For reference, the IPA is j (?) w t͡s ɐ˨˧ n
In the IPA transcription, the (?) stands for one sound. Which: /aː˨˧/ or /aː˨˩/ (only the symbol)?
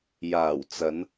aː˨˩